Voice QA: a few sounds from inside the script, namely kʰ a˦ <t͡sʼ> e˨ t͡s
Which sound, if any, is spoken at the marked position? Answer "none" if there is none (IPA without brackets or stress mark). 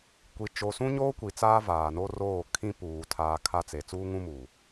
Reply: t͡s